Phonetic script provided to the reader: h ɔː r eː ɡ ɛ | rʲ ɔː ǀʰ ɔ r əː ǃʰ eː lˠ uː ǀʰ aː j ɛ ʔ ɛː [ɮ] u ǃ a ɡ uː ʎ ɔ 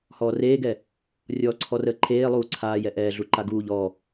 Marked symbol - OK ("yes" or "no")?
yes